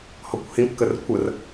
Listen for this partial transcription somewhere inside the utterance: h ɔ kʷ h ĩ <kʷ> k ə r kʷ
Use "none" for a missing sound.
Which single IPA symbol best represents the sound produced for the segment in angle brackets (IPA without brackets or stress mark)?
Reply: p